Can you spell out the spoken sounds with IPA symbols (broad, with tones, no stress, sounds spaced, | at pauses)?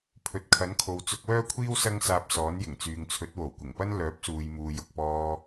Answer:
pʰ ɵ˨ t̚ kʰ ɐ˨˥ n kʰ o˨ w t͡s ʊ˧ k̚ w œː˥ kʷʰ iː˥ w s ɐ˥ ŋ s aː˧ p̚ s ɔː˨˥ n j ɪ˨˩ ŋ t͡s yː˨ ŋ t͡sʰ ɵ˨˥ t̚ w o˨˩ w kʷ ɪ˨˩ ŋ p ɐ˥ n l œː˨˥ p̚ s uː˨ j m uː˨ j ʊ˨ k̚ p ɔː˧